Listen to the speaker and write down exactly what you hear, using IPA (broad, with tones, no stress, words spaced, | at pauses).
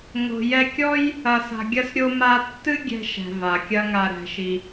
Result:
ŋo̤˧jɛ˦ kʲɔ˦j | ɐ˧sa̤˧ɡʲɐ˦s ɾʲo˦ma˦ tːɨ˦ɡʲɛ̤˧ʃɛ̤˨ va˨kʲɐ˦ŋa˧ ɾɛ̤˧ʃi˧